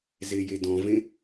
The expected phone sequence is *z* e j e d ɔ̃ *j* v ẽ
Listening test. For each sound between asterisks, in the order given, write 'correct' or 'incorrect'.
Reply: correct, incorrect

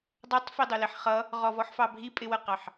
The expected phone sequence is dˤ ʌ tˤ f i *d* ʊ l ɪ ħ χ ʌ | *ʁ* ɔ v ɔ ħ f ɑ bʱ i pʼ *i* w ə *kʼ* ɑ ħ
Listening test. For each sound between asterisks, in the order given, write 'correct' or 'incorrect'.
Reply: incorrect, correct, incorrect, incorrect

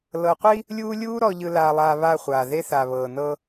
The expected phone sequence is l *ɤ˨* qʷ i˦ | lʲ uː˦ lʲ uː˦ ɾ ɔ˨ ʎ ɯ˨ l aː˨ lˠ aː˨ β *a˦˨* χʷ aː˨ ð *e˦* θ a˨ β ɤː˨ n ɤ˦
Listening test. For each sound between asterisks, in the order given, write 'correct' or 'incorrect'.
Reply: correct, correct, correct

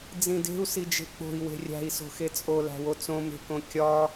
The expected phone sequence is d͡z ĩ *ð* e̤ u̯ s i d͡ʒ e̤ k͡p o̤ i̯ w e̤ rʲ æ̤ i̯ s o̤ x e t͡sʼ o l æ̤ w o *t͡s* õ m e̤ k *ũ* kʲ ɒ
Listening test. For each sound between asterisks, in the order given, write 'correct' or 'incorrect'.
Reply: incorrect, correct, incorrect

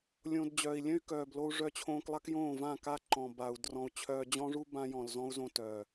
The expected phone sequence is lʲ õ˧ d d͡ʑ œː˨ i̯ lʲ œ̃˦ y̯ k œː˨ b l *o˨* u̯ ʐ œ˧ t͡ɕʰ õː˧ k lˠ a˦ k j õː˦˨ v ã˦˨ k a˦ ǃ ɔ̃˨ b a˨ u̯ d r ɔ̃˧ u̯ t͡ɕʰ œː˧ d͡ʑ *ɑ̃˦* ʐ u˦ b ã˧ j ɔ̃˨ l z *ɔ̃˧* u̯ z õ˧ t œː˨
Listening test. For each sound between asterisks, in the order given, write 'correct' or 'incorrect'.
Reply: incorrect, incorrect, correct

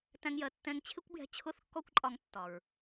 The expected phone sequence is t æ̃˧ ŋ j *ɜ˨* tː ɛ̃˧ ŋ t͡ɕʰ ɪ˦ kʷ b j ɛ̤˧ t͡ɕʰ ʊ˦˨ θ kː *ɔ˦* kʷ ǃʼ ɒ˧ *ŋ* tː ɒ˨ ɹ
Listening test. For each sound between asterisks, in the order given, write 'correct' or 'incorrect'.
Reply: correct, correct, correct

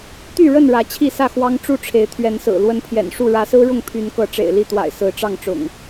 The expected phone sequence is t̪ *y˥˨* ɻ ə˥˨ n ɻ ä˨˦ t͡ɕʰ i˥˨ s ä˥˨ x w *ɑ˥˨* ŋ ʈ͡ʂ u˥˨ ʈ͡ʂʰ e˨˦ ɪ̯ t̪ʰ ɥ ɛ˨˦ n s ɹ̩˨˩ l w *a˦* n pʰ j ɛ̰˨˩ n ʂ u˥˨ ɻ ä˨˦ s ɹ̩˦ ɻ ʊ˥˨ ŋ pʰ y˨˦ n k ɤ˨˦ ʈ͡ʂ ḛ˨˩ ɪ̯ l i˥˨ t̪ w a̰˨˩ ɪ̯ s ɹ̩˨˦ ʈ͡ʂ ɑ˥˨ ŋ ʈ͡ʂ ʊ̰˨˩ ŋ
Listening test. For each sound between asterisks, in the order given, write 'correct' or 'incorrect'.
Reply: correct, incorrect, incorrect

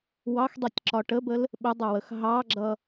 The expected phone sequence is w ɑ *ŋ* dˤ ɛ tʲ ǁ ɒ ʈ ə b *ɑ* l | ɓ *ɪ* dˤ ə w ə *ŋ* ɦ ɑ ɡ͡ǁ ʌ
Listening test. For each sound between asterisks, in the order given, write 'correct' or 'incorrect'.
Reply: incorrect, incorrect, correct, incorrect

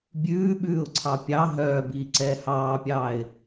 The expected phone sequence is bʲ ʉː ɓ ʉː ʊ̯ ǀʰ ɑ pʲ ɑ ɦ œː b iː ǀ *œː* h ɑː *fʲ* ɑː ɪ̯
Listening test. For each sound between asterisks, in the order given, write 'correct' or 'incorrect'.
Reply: incorrect, incorrect

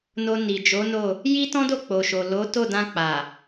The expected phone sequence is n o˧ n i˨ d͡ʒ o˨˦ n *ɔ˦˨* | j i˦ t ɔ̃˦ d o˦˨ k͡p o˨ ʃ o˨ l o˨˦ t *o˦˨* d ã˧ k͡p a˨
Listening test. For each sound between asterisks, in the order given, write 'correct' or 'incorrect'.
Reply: incorrect, correct

